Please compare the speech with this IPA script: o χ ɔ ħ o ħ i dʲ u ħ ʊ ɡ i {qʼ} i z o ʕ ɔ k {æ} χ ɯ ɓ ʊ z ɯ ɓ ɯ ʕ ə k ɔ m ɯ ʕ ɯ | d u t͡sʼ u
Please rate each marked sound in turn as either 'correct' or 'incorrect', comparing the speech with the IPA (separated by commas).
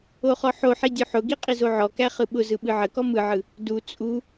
correct, correct